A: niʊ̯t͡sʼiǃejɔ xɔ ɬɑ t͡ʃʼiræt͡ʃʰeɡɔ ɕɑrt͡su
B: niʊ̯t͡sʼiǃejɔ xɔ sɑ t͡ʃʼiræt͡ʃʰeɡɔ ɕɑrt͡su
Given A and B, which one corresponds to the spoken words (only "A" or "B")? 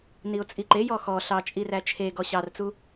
A